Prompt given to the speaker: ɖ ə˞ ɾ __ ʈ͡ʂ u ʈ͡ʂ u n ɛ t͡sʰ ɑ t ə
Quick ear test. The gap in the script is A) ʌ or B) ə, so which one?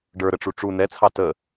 B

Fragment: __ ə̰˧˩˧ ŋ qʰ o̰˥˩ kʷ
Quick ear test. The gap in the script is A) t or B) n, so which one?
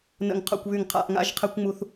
B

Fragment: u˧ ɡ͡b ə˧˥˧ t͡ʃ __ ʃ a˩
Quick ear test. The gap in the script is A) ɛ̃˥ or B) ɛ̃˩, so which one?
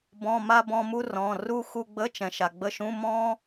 B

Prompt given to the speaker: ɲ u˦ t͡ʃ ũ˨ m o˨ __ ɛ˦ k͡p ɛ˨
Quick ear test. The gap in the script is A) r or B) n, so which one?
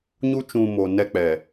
B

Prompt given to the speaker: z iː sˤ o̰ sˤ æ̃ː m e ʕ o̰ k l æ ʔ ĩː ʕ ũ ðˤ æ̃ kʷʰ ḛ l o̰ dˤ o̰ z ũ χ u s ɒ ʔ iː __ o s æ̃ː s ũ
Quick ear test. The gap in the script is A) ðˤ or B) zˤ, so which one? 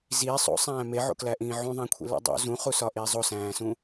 B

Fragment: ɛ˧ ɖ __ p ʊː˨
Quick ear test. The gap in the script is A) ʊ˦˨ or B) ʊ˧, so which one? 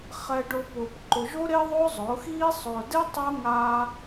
B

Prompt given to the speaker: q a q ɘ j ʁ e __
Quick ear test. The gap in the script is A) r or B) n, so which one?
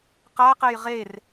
A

